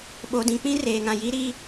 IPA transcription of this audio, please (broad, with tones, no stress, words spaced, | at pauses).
ɓo˨dĩ˨ k͡pĩ˦reː˨ŋã˨ ji˦ɾi˦